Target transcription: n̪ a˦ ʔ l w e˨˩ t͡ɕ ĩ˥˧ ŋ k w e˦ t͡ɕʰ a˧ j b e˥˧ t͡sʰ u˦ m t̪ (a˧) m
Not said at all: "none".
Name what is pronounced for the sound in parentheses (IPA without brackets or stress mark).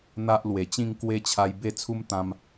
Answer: ã˧